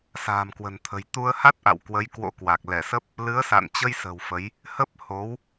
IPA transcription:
s a̤ː˨˩ m k w ə̤˨˩ n t̪ʰ ə̤˨˩ j t̪ u˧ ə̯ h a˦˥ t̚ ʔ a̰˧˨ w k w ə˨˦ j k w o̰˧˥ k w a˨˩ k̚ l ɛ˧˩ s ə˦˥ p̚ | l ɨ˨˦ ə̯ s a̰˧˨ n t͡ɕ ə˧ j s ə̤˨˩ w f ə˨˦ j | h ə˦˥ p̚ h o˨˦ w

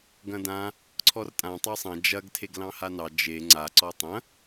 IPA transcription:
ɡ ɐ̃ d ã | ǀʰ ɔ r tʼ ã tˤ ɑ sˤ ɐ̃ d͡ʒ ɐ ɡ tʰ e ɡ l ɑ̃ h a n ɑ d͡ʒ e ŋ͡ǀ a ǀ ɔ tˤ ɐ̃

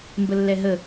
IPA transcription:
m b ə lː ɛ ɦ ə

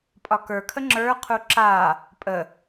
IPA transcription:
pʼ ɒ k ə˞ kʰ ə ŋ͡ǁ ə˞ qʰ u ǁ a | pʼ ə

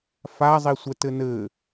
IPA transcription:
f a zˤ i sʷ ɛ t ɘ n ɘ

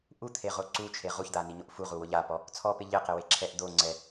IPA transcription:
ʔ u t̪ʰ e ʁ o ǀ u t͡ʃʰ e ʁ u ç d̪ a n i ɲ o ʔ f u ʁ u w ʊ ʎ a p ɔ | t͡sʰ ɔ p ɪ ʎ ɪ q e w e ǁʰ ɛ ʔ d̪ o ŋ͡ǀ ɛ

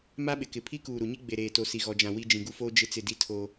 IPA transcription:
m a˦ ɓ ɪ˨ k ɪ˨ pʰ i˦ k uː˨ ɾ u˨ ɲ i˦ ɡ͡b e˨ ɾ eː˨ t o˨ s i˨ ɣ ɔ˨ d͡ʒ ã˨ w i˦ d͡ʒ ĩ˨ ɡ u˦ f oː˦ d͡ʒ ɪ˦ t͡s ɪ˦˨ d i˦ tʰ o˦

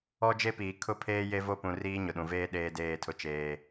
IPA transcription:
ɔ˦ d͡ʒ e˦ p iː˨ kʰ ʊ˦˨ pʰ eː˦ j e˦ v o˦ p ũ˨ r iː˦ ɲ ʊ˨ ɗ ũ˨ v eː˦ ɗ eː˦ d eː˦˨ tʰ ʊ˦ t͡ʃ eː˦

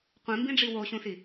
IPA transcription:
qʷ ĩ m b ĩ ɖ͡ʐ i w o ɕ ũ s i

